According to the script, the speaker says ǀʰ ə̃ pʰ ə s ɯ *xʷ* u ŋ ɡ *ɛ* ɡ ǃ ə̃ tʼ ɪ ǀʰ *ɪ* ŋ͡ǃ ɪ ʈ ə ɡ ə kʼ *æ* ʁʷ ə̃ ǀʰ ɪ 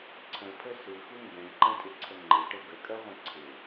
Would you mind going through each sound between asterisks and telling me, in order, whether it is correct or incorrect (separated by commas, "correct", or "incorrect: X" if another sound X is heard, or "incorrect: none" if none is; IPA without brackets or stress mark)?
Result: incorrect: x, incorrect: ɛ̃, incorrect: ə, incorrect: ɜ